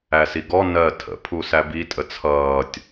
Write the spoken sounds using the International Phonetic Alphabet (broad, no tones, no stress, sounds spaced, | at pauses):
æ s i ɡ ɔ n ɜ tʰ ə̰ pʰ u s æ b i tʼ ə t͡sʰ ʌː tʲ